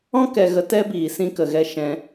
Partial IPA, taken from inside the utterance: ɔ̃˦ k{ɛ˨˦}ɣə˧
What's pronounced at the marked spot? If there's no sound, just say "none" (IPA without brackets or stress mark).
ɛ˧